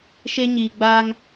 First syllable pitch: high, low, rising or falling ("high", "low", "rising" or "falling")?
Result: high